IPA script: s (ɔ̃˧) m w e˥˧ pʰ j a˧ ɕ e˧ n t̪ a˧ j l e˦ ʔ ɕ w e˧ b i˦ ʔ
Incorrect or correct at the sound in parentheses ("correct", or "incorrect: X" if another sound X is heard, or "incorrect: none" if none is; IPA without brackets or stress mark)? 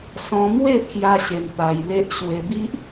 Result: correct